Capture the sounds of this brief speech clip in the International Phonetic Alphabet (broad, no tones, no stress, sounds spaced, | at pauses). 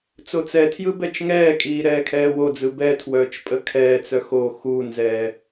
t͡s o t͡s ɛ tʰ j ɯ b ɛ t͡ʃ ŋ ɛː kʼ iː ɾ ɛː kʰ ɛː w o d͡z ɯ b ɛ tʰ w œː t͡ʃ pʼ ə kʰ ɛː t͡s œ x o x u n z ɛː